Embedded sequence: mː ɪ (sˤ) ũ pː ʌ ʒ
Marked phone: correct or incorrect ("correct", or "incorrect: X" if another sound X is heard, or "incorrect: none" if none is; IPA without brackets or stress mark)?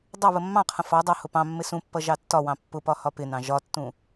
incorrect: s